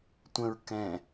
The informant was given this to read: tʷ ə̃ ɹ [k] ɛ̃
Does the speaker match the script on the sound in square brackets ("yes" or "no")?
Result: yes